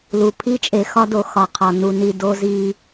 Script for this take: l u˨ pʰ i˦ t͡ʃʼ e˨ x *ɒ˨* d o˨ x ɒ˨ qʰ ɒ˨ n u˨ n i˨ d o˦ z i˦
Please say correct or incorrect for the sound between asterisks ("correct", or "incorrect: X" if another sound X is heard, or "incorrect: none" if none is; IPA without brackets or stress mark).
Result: incorrect: ɒ˦